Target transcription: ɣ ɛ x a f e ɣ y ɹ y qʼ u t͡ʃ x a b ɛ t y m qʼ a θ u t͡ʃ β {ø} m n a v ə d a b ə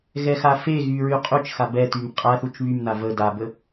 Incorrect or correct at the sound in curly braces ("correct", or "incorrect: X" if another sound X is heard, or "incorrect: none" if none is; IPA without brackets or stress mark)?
incorrect: y